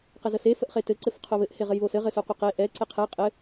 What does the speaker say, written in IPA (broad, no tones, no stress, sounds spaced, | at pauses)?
q ə z ə s e f ə ʔ χ e t ɘ ǀ ɘ f qʰ o β ɘ ʔ h e ʁ ɘ j β o s ɘ ʁ ɘ s o qʷ ɘ q e ʔ ɛ ǀ ɛ qʰ ɛ qʼ ɘ